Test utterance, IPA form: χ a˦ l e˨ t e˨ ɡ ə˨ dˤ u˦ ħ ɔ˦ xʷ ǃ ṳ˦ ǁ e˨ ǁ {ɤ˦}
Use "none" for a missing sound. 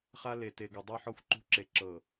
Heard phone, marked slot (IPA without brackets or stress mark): ɤ˨